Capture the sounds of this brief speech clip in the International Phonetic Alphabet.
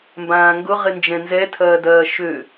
m b ãː ŋ ɡ ʊ ʁ ɪ n d͡ʒ ɛ̃ n z ɛ tʰ ɐː d ɐː ʃ ø

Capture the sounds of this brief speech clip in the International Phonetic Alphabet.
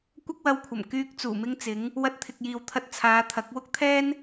kʷ ɐ˥ k̚ w ɐ˧ w kʷʰ ɐ˨˩ m k yː˧ k̚ t͡s uː˨˩ m ɪ˥ ŋ t͡s ɪ˨˥ ŋ | w ɐ˧ t̚ t̪ʰ ɪ˨ k̚ j iː˨ w t̪ʰ ɐ˧ t̚ t͡sʰ aː˨˧ t̪ʰ ɐ˨˥ k̚ w ʊ˥ k̚ t̪ʰ ɛː˥ n

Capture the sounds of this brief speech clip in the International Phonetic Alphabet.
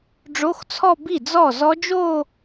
ɖ͡ʐ o˧˥˧ x t͡sʰ ɔ˥˧ b i˥˩ d͡z ɔ˥˩ z ɔ˦˥ d͡ʒ o˥˧

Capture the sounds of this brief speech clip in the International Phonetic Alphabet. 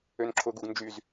ø n ǁʰ ʊ ɡ u ɡ n d͡ʒ y z

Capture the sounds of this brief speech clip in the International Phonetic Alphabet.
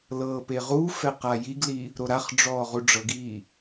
l ɤː p e ʁ uː f ɛ q a j i ɡ l i | ɾ o ɾ a χ ɖ͡ʐ ɔː ʁ u ɖ͡ʐ ɤ ɡ iː

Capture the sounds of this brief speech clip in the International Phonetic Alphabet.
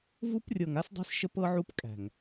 v u˦ p rʲ ɤ˨ ŋ a˦ s dˤ ɛ̤˦ s ʃ ə˦ p ɤ˦ ʕ u˦ p kʼ æ̤˨ ŋ

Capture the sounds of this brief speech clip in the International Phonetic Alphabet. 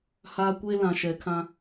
h aː˦ kʷ e˦ l ã˨ ʃ ɛ˨ kʰ ã˦

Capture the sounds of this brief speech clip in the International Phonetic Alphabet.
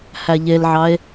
h æ ʎ e l ʕ ɑ e̯

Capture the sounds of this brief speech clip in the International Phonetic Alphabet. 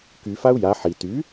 k y f a u̯ j a ħ i t y

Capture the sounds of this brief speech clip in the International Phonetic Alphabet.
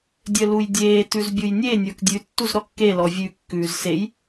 dʲ œ l u j dʲ eː t ʉ z bʲ u j nʲ e nʲ ə˞ k dʲ ʉ tː u z ɾ ɔ kː e l ɔ vʲ ʉ kː ʉː z s e j

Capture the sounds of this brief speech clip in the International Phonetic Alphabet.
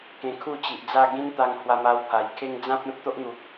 k ẽ˧ kʰ u˥˧ t͡ɕ i˨ ʔ d͡z a˥˧ ɡ ĩ˦ n t̪ a˧ ŋ h w a˧ m a˧ w pʰ a˨˩ j kʰ e˦ ŋ d͡z ã˦ p̚ ẽ˦ p̚ t̪ o˦ ʔ n̪ u˨ k̚

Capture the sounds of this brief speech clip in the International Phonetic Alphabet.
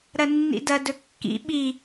ɾ ɐ nː ḭ d ɐ d ɵ kː ḭ ɓ i

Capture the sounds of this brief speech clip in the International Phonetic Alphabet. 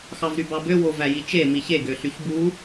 x ɑ v ɾ y b ɑ b ø w o v æ j i t͡ʃ e m i ç e ɡ ø ɬ y ç b u

